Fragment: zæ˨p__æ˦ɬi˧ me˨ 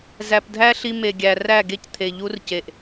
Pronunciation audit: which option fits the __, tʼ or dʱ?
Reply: dʱ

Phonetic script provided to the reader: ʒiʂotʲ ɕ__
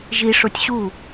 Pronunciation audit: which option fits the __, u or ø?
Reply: u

